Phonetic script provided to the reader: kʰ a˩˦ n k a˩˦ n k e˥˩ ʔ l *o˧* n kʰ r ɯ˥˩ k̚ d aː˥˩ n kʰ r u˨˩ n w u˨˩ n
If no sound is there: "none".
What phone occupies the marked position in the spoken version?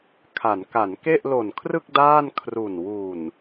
o˨˩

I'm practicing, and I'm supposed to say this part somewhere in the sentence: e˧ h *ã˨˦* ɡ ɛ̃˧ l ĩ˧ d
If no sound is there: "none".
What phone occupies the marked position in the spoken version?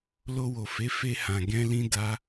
ã˨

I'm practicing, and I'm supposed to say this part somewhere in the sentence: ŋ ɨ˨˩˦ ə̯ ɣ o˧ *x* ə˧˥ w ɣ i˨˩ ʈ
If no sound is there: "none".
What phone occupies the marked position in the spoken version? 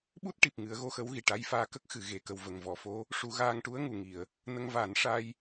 x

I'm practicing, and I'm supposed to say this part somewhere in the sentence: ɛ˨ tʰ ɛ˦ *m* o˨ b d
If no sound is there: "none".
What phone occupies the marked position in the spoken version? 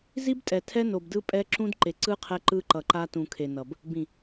n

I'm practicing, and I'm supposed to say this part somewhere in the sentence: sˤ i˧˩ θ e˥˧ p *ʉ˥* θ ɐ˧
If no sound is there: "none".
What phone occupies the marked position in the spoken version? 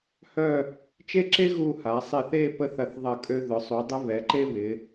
ə˥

